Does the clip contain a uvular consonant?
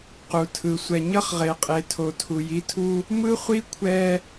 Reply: yes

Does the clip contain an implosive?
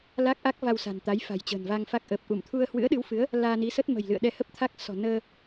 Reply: yes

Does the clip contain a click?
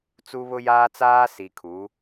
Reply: no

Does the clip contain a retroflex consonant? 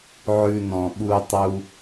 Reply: no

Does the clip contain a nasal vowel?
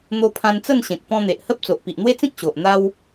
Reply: yes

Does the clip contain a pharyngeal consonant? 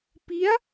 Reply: no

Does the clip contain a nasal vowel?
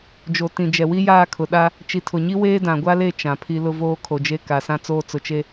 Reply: yes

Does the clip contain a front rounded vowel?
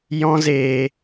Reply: no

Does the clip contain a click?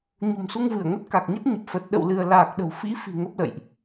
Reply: no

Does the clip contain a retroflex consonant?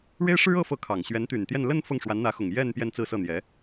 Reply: yes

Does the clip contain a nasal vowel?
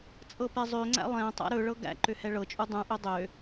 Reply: yes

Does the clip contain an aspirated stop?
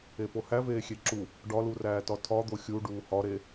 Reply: yes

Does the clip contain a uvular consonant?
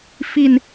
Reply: no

